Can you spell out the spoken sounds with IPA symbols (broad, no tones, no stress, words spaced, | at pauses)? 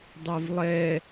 dˤɛvlˠɛ